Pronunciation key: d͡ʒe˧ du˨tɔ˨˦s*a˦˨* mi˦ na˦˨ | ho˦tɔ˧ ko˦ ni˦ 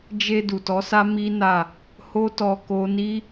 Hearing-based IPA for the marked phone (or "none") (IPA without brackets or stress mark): a˦